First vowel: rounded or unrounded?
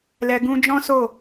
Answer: unrounded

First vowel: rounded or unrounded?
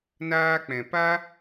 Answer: unrounded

